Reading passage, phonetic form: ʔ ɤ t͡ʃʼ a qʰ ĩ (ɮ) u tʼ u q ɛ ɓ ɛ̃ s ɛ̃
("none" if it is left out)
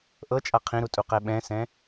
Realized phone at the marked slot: ɾ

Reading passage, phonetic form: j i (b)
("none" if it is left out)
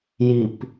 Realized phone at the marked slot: p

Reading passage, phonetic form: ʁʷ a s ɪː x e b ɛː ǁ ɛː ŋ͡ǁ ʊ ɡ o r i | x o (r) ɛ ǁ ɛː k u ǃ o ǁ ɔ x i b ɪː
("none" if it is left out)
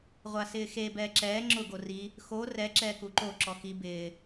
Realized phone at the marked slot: r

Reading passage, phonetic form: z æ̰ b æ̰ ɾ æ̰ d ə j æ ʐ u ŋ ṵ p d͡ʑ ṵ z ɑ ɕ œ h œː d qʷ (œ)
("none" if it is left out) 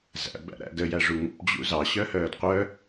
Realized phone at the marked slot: œ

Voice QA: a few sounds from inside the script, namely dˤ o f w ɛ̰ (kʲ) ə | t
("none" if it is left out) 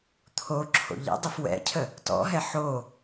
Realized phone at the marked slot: cʰ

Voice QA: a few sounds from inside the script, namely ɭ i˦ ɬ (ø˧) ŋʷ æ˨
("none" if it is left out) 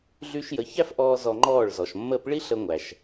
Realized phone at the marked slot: ə˧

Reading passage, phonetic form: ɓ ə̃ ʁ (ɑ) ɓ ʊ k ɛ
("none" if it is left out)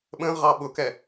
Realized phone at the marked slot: ɑ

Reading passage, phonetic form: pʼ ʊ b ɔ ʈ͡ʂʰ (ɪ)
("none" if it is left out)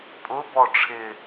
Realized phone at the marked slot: ɪ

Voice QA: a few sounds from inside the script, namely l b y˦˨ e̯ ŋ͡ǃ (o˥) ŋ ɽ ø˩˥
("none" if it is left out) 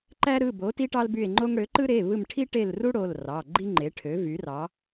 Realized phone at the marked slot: o˥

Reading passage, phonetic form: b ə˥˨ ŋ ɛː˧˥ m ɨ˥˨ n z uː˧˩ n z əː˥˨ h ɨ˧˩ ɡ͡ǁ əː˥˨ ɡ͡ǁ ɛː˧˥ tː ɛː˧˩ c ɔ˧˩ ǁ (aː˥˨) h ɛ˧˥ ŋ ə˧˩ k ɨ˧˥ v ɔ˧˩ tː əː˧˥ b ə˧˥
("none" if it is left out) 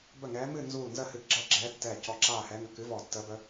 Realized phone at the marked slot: aː˥˨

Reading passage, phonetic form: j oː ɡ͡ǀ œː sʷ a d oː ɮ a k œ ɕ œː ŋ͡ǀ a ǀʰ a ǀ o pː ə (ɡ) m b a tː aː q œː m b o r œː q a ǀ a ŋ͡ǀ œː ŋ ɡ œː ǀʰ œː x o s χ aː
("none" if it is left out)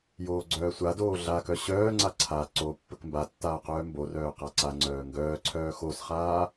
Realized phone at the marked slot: k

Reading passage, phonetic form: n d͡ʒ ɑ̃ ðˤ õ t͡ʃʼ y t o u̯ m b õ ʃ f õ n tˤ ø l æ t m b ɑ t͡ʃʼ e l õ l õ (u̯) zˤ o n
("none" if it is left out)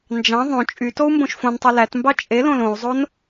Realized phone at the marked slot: u̯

